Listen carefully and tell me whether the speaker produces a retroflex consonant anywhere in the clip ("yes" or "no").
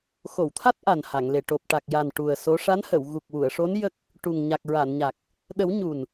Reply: yes